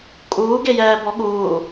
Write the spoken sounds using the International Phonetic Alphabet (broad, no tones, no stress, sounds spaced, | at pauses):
kʼ uː ɡ e j ɛː b ɔ ɠ uː